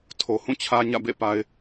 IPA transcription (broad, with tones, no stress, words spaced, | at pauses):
tʰo˨hũ˦˨t͡ɕʰä˦ ɲä̰˦˨bḛ˦˨pa˨ɪ̯